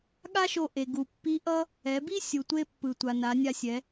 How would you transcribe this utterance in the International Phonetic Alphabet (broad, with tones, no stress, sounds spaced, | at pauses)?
ɠ a˥ ʃ o˧ ʔ e˩ ɡ u˩ pː i˧˥ ʔ ʌ˥ | ɛ˩˧ b i˥ sʲ u˩ tʷ e˧ pː ɯ˩ tʷ a˩ n a˩˧ nʲ a˧ sʲ ɛ˩˧